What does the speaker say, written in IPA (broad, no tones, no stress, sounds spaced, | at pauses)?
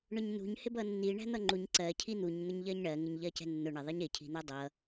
ɳ ʊ ɲ n ṳ ɲ h ɪ b ʌ nː i ɳ æ̤ n̪ ʌ ŋ͡ǃ u ɲ ǀ ɜ cʰ i n̪ u ɲ n̪ ʊ ɲ ʎ ɜ ɲ ɳ ɜ ŋ ɪ ɲ ʎ ɜ c ɛ̤ nː ʊ ɳ ɪ ðˤ i ɲ ɪ cʰ i̤ n̪ ɜ dˤ ʌ